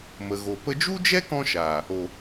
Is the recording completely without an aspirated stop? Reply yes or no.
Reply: yes